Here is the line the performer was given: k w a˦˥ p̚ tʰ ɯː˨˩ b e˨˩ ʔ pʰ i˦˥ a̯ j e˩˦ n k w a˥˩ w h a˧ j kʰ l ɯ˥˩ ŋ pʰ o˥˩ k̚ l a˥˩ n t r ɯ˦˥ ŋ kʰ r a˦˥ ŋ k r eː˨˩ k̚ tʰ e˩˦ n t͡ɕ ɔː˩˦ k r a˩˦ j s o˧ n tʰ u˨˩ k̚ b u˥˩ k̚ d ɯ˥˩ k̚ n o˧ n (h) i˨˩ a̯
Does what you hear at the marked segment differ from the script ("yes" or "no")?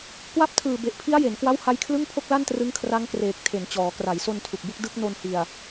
no